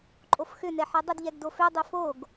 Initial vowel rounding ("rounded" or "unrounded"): rounded